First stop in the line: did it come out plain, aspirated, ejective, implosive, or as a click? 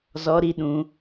implosive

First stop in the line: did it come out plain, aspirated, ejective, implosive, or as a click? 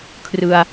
aspirated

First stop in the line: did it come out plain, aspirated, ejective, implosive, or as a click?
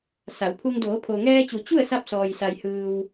aspirated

